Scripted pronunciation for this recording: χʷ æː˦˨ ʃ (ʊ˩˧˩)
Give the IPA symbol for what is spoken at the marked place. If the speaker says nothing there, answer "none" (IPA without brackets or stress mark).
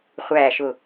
ʊ˦˨